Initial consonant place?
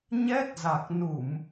palatal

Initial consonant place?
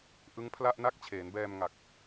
glottal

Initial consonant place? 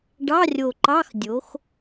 retroflex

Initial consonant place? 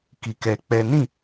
velar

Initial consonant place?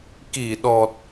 velar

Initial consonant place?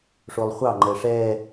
retroflex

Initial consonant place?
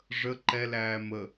retroflex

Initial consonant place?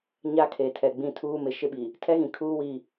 palatal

